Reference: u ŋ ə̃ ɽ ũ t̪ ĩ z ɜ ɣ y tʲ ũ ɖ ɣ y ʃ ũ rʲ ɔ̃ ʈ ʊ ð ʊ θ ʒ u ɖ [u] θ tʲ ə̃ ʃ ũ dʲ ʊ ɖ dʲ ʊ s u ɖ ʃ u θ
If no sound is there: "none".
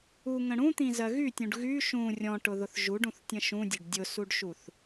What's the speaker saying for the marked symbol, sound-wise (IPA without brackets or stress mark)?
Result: ũ